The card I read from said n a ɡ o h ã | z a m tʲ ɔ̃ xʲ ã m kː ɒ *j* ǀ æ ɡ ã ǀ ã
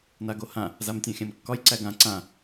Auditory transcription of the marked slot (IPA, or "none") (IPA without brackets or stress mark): j